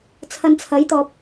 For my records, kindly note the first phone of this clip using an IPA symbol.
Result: t͡sʰ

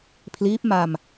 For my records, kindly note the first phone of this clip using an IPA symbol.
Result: pʰ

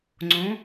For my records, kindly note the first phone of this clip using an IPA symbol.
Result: ŋ͡ǀ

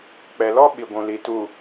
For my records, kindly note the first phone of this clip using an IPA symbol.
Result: k͡p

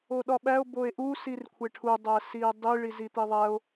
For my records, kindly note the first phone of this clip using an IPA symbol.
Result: o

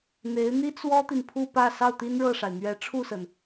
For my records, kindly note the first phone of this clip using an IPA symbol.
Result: n̪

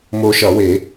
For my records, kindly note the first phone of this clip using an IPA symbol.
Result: m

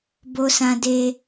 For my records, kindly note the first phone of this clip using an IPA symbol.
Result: b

